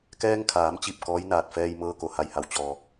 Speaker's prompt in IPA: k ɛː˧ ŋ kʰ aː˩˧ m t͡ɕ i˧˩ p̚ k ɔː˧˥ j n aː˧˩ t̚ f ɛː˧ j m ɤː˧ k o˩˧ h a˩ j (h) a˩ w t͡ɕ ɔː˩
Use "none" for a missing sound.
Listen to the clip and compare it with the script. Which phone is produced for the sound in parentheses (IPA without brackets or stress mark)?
h